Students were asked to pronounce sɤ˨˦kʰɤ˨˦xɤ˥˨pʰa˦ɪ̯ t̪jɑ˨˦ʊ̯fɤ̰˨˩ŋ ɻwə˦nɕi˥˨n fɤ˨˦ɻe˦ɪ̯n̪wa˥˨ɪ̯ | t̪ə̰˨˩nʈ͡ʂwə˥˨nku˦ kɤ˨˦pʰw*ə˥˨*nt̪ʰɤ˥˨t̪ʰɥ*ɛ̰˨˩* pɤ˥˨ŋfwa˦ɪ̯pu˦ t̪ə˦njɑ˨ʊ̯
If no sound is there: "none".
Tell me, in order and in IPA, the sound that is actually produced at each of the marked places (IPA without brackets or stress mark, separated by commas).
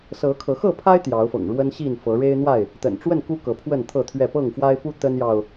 ə˥˨, ɛ˥˨